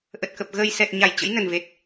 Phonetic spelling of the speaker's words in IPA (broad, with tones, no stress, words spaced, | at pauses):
ʔə˨˩t̚kə˨˩p̚ ɣəː˨˩j sɛ˨˩t̚ ɲa˧˩jt͡ɕə̰˧˥jnə˨˩nve˨˩t̚